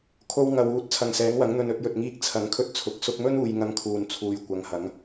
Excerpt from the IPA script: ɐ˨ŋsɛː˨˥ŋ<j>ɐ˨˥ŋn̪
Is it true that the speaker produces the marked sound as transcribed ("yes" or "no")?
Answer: no